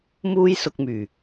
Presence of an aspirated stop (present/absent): absent